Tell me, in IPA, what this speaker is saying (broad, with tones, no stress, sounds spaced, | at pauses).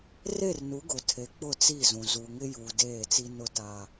r e˦˨ r n u˨˦ ɡ ʊ˨ tʰ e˨ k͡p ʊ˦˨ t͡s i˦˨ z ũ˨ z u˨ ŋ ɪ˦ j u˨ d eː˦˨ t͡s i˦ n ʊ˦ t a˦